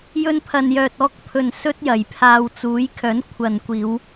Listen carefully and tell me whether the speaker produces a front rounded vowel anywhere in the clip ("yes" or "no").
yes